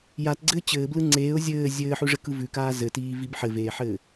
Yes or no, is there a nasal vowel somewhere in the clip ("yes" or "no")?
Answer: no